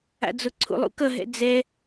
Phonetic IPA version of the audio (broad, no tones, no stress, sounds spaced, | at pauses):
a̰ d͡z o ǀʰ ṵ lˠ ṵ k ʌ ɦ ɛ̰ d͡z ɛ